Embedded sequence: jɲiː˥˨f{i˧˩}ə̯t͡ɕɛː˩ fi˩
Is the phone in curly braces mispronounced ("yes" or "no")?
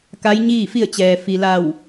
yes